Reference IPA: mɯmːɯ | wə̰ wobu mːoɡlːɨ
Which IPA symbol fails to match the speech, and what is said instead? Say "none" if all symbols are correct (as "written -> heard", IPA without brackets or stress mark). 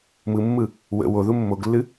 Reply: b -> ð